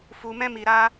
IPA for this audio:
f u˧ m ɛ̃˦ m i˧ ɾ a˦

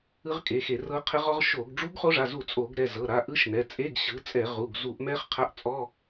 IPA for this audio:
ɯ˦˥ ʁ kʼ e˩˧˩ x e˧˩˧ r ɤ˦˥ qʰ ɛ˦˥ ʁ ɔ˦˥ ʁ ʃ o˧˩˧ ɡ ɖ͡ʐ u˦˥ ɡ χ o˦˥ ʐ a˩˧˩ z u˧˩˧ t͡sʼ o˧˩˧ ɡ ɾ ɛ˩˧˩ z ɤ˩˧˩ ɾ a˩˧˩ ʔ ɯ˦˥ ʃ n ɛ˩˧˩ t͡sʼ e˧˥˧ ɡ ɕ ɯ˩˥ t͡sʼ ɛ˧˩˧ ʁ u˩˧˩ ɡ z u˧˩˧ ʔ m ɛ˦˥ χ qʰ a˧˥˧ ʔ t͡sʼ ɔ˧˥˧

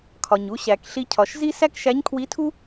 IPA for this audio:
kʰ ɒ˩ ɲ u˩˧ ɕ æ˩ k ɬ i˧ cʰ ɒ˩ ʃ z i˥ s æ˥ k ʃ æ˧˥ ɲ kʰ w i˧˥ tʰ u˥

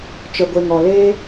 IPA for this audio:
t͡ʃ ə˨ ɡʷ e˨ ŋ ɔ˨ l e˦

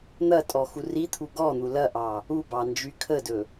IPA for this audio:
n̪ ɐ tʼ ɔ x u r i t̪ʰ u ɡ ɔ n̪ u l ɐ ʔ ɑ | u b ɑ n d͡ʒ y kʰ ə d ɵ

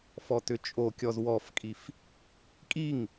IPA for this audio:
f ɔ t ʏ t͡ʃʼ o kʲ ɔ z w ɔ f kʼ i f | kʼ i ŋ

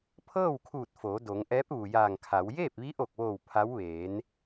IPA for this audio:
pʰ ɤː˥˨ w kʰ uː˧˩ t̚ f oː˩˧ d o˩˧ ŋ ʔ ɛː˧˥ p̚ ʋ u˩ j aː˧˩ ŋ kʰ a˩˧ w j eː˥˨ p̚ ʋ i˧˥ ʔ o˧˩ k̚ ʋ oː˧˩ w pʰ a˧˥ w ʋ eː˩˧ n

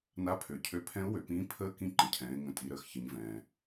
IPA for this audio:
n a˧˥ pʰ ø˩˧ cʰ ø˧˥ pʰ ɛ̃˧˥ ʊ̯ w ø˩ p ĩː˧˥ pʰ əː˧˥ k ĩ˧˥ ǃ ə̃˩ cʰ ɛ̃ː˩˧ ɪ̯ ŋ ə̃˩˧ tʼ i˩˧ ɾ əː˩ x ç ə˩˧ ɲ v ɛ̃ː˩

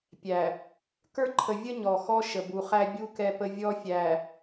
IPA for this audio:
pʲ æ˨ | k ə˞˦ ǃʰ ə˨ vʲ ə˦ ɲ ɔ˨ x ɔ˦ ʃ ə˨ b u˨ χ æ˦ bʲ u˦ k ɛ˨ p ə˨ vʲ ɔ˦ fʲ æ˨

